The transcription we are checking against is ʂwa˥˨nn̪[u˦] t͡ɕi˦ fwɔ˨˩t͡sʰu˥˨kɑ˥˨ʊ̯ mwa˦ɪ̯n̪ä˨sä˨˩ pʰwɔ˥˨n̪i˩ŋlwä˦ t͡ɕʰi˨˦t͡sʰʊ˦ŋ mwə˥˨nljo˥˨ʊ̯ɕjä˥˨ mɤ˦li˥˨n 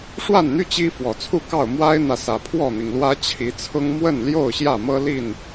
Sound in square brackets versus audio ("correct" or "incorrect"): incorrect